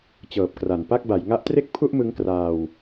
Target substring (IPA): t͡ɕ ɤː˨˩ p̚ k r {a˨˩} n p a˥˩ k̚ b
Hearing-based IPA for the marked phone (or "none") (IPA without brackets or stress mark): a˩˦